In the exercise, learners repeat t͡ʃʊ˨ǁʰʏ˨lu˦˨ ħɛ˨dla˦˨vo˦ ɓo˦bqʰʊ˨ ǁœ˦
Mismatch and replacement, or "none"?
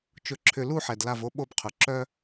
none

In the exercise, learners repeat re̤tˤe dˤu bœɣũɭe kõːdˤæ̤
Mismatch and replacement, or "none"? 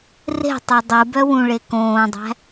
ɣ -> w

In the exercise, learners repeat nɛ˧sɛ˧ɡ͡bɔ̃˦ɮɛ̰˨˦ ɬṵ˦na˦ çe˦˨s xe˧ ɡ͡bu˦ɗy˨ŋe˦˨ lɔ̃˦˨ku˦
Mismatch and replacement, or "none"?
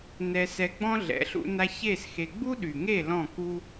none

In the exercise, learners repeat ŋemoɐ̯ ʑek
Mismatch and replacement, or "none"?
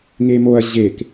none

